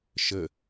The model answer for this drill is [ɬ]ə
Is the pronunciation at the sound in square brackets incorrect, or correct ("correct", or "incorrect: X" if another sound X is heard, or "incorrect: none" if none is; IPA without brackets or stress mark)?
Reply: incorrect: ʃ